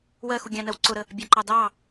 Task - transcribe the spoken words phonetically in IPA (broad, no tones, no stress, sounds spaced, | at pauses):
w ɜ x u ɡʲ ɑ̃ n ɜ w ǀ ʊ ɾ ə | bʲ ɑ ǃ ɑ d ɑ